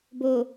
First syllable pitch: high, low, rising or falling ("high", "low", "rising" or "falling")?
low